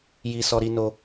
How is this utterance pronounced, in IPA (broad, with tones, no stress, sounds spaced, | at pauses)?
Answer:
j i˦ s ɔ˦ ɾ i˦ n o˦